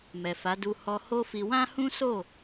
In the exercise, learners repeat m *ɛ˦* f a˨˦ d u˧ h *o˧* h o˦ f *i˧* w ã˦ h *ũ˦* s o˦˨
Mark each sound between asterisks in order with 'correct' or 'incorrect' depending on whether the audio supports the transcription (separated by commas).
incorrect, incorrect, correct, correct